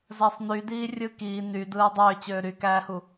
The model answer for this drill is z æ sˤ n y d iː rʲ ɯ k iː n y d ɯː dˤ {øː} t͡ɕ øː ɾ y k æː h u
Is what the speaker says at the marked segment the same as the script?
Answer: yes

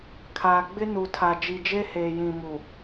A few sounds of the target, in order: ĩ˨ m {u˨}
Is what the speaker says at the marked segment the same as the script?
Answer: yes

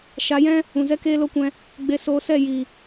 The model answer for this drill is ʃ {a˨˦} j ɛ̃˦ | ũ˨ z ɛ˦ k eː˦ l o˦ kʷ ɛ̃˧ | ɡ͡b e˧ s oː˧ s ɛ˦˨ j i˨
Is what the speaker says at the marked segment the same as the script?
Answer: yes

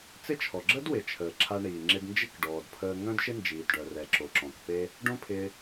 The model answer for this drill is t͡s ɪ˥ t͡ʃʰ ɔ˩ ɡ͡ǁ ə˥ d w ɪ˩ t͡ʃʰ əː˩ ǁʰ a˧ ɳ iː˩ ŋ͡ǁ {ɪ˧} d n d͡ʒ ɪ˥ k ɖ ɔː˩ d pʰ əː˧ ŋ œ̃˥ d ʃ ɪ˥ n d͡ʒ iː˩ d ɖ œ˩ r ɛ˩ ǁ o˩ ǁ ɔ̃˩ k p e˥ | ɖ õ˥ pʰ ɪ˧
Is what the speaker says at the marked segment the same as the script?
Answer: yes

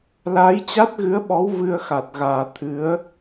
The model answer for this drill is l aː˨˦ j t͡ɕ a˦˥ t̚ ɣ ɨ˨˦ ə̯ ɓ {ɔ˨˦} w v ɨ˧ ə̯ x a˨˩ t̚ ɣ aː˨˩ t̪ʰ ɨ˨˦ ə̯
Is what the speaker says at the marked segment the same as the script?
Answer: yes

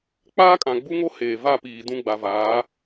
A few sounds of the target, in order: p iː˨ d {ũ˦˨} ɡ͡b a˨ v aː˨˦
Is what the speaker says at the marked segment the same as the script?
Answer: yes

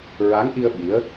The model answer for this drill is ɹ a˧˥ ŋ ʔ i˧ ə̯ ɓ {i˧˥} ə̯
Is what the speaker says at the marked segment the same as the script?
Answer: yes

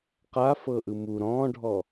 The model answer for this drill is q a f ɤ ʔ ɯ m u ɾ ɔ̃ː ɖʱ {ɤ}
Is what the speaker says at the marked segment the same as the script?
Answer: no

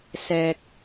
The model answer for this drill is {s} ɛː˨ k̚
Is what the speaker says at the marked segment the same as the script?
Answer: yes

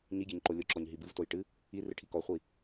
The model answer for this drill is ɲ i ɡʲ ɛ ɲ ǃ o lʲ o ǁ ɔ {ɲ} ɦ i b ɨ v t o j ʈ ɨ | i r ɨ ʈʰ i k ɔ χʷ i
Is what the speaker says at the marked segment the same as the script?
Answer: yes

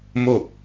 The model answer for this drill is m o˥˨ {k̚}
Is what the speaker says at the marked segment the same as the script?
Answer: yes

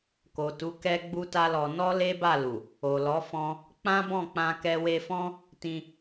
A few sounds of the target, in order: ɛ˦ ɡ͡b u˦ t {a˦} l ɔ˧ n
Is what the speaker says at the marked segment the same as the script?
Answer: yes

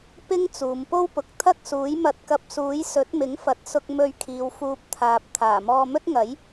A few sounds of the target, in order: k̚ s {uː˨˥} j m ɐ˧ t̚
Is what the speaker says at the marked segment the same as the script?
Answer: yes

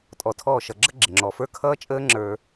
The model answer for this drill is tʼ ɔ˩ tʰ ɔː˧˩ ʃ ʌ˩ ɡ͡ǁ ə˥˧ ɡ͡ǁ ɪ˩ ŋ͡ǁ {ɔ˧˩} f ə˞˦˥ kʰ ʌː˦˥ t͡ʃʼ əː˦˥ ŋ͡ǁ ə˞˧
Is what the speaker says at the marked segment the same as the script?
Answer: no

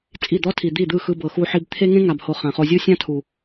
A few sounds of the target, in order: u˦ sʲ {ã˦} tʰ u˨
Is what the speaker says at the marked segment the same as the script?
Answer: yes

